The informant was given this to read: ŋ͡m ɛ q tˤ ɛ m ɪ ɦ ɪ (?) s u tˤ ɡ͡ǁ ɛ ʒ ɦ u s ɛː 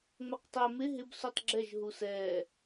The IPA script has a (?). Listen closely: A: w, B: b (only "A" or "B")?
B